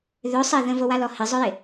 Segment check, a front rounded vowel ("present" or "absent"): present